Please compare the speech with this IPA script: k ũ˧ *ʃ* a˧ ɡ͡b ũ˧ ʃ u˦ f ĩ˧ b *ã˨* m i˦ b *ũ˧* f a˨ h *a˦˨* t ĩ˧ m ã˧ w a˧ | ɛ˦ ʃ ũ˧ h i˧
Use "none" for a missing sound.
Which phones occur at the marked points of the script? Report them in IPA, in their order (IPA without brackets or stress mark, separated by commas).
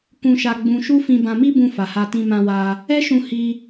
ʃ, ã˧, ũ˧, a˧